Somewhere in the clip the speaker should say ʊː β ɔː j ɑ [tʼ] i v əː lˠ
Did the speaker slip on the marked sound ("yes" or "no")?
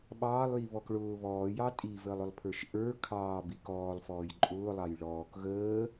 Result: no